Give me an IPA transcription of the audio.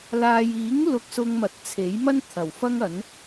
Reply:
l aː˨ j iː˨˥ ŋ l ʊ˧ k̚ s ʊ˧ ŋ m ɐ˨˥ t̚ t͡sʰ e˨˥ j m ɐ˥ n t̪ʰ ɐ˨˩ w f ɐ˥ ŋ ɐ˨˥ n

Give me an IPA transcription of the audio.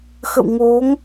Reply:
x ə̰˧˨ w ŋ o˨˦ ŋ

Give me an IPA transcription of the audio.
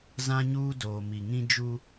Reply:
z ã˦ ɲ uː˦ d oː˨ m i˨ ŋ ĩ˦ d͡ʒ u˦

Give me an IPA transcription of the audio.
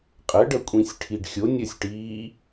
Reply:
qʼ ə ɖ ʌ kʷʼ ĩ sʲ ʈʰ i ɖ xʲ o nʲ ə sʲ ʈ iː

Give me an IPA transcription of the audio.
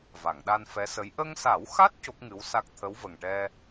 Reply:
v a˨˩˨ ŋ ɗ a˧ n f ɛ˧˥ s ə˧˥ j ʔ ə˧ ŋ s a˨˩˦ w x a˦˥ t̚ c o˦˥ k̚ ŋ ɨ˧˥ w s a˦˥ k̚ t̪ʰ ə˧˥ w v ə˨˩ ŋ ʈ ɛ˧

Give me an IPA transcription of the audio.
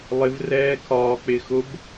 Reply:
lˠ ɪ v r ɛː kʰ ɒː k͡p ɪː x ʊ b

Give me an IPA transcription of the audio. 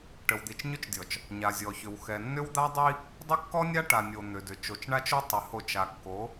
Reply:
ʈ ə˨ w d̪ i˨ t͡ʃ ɲ ʏ˦ t͡ʃ dʲ ɔ˨ t͡ʃ | ɲ a˨ zʲ ɔ˨ ç ʏ˨ w x ɛ˨ nː ʏ˦ w d̪ a˦ dˤ i˦ | dˤ ʏ˦ kː ɔ˦ nʲ a˦ ʈ a˨ nʲ o˨ n̪ ʏ˨ d ʏ˨ t͡ʃ o˨ t͡ʃ ɳ a˦ t͡ʃ o˦ tˤ ʏ˨˦ h o˦˨ t͡ʃ a˨ kː o˨˦

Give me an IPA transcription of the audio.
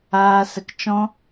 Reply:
aː˦ s ə˦ k t͡ʃ ɔ̃˦

